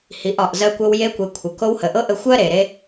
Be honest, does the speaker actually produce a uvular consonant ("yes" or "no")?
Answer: no